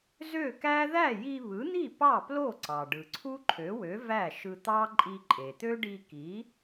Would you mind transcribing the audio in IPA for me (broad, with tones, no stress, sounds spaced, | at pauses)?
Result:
z ø˥˩ k æ˥ ð æ˥˩ j i˧ β ɯ˩˥ n̪ i˥˩ p ɑ˥˩ p l o˥˩ ǀ ɑ˩ ɖ ɯ˩ ǀʰ u˥ ǃʰ ø˩˥ w ø˩˥ v æ˥˩ ʃ ɯ˧ t̪ ɑ˥ ǃʼ i˧ ǃʼ e˩ t̪ ø˥ ɖ i˧ k i˩˥